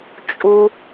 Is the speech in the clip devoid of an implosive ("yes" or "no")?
yes